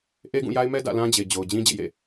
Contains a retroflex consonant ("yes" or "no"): no